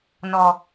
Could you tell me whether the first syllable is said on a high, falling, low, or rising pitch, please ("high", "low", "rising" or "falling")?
low